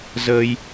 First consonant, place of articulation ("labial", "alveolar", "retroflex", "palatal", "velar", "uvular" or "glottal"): alveolar